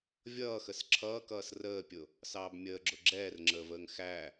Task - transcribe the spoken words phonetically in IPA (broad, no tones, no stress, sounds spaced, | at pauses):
vʲ ʌː x ə s ǁʰ ʌː k ʌː s r əː pʲ ʊ | s ɑː b mʲ əː ɡ͡ǁ ʊ ɡ͡ǁ ɛː r ŋ͡ǁ əː v əː ŋ x æ